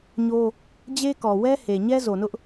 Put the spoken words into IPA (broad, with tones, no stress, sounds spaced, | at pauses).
ɲ o˦ | d͡ʑ e˦ k ɔ˨ w ɛ˦ h e˨ ɲ ɛ˦ z o˨ n ʊ˦ ʔ